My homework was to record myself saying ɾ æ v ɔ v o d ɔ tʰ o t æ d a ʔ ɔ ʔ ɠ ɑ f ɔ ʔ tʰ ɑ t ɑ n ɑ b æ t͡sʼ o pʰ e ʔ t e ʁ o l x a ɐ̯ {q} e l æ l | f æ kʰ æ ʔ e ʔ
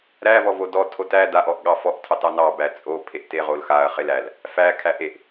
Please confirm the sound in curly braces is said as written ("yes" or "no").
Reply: no